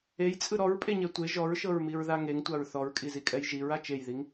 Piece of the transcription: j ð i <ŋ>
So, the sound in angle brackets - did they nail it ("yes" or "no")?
yes